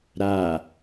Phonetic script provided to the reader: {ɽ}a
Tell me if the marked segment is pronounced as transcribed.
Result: no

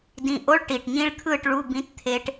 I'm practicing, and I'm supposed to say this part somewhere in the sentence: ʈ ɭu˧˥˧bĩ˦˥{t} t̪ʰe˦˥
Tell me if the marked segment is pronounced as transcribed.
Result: yes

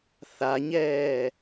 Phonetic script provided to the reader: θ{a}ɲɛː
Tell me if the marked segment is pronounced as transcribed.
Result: yes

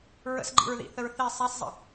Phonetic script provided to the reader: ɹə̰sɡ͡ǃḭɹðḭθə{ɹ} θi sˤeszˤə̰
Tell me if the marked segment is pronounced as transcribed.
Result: yes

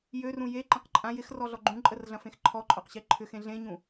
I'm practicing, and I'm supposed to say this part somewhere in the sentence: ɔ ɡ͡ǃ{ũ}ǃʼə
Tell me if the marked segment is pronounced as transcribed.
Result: yes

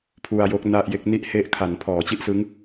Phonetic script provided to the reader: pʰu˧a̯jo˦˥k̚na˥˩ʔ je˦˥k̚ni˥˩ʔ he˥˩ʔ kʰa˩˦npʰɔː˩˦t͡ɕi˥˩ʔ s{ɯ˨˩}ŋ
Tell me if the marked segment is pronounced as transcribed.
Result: no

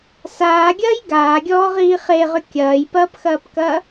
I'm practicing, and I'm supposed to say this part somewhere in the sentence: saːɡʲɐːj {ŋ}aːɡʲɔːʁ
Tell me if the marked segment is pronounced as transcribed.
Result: no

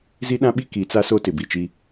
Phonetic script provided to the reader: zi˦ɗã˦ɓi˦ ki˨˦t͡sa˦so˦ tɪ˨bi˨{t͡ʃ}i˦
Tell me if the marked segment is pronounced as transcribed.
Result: yes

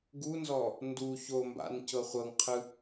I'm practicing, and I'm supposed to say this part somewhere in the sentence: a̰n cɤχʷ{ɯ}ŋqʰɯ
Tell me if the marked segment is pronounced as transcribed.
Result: no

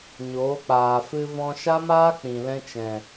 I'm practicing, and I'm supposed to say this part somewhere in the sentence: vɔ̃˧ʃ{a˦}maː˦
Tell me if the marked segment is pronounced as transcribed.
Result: yes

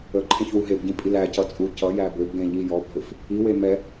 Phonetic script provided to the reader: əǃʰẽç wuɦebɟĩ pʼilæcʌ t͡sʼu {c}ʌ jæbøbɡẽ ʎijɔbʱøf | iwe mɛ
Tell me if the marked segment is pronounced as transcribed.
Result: yes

